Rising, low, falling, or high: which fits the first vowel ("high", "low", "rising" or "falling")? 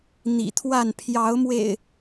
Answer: low